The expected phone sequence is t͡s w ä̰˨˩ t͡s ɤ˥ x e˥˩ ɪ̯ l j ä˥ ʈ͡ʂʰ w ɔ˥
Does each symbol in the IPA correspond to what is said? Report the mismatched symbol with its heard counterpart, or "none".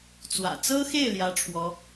none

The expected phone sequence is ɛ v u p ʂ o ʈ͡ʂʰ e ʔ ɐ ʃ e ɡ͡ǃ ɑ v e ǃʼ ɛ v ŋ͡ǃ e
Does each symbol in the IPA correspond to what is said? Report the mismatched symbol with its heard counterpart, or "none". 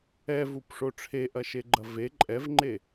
ɑ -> ɐ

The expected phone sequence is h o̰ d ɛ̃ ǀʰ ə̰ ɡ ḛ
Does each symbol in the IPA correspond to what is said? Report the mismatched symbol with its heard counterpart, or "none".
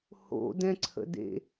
ɡ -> d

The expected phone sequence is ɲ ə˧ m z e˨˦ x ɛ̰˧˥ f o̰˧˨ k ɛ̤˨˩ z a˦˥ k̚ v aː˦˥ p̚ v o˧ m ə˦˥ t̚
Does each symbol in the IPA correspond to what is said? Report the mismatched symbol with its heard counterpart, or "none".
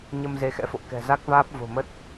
o˧ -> o̤˨˩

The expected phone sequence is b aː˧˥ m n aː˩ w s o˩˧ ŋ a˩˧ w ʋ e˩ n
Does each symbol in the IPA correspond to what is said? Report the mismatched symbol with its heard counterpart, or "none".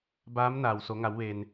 none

